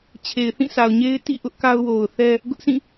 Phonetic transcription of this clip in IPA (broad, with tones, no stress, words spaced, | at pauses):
t͡ɕʰe˨ɪ̯θĩ˦˨sʰa˨ʊ̯ɲe˦ɪ̯ tḭ˦˨ʔʊ˦ʔ ka˦ʊ̯wo˨ʊ̯θɛ˦ | ɡʊ˦ʔsĩ˦˨